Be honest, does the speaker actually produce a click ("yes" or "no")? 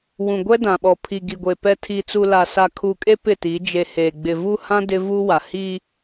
no